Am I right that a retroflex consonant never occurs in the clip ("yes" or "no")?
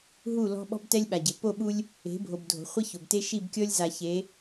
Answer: yes